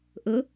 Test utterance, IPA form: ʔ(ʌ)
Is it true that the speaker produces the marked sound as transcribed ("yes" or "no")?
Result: no